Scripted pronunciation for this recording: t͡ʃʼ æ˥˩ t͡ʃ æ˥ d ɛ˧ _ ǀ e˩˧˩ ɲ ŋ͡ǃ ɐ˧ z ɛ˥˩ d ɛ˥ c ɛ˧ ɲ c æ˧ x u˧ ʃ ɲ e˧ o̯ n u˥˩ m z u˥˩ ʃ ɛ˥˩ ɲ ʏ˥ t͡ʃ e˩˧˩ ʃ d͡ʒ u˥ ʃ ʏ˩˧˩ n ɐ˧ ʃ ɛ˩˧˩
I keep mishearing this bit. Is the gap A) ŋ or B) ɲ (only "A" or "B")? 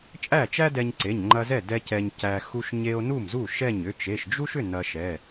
B